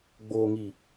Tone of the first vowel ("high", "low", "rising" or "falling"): low